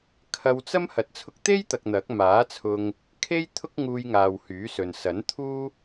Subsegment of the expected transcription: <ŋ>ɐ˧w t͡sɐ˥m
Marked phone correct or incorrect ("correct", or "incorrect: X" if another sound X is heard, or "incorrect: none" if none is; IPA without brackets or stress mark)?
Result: incorrect: kʰ